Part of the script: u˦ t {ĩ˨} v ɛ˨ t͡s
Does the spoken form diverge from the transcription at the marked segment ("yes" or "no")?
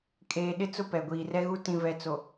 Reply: no